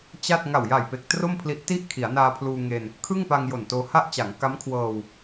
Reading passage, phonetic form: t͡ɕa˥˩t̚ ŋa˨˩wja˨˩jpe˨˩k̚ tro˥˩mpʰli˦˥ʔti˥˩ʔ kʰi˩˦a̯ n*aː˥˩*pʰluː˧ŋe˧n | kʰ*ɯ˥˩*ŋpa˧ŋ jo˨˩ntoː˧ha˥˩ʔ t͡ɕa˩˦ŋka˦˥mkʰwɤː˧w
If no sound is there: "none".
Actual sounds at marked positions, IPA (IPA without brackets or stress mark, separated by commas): aː˧, ɯ˥˩